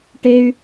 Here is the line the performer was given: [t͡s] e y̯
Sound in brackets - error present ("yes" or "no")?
yes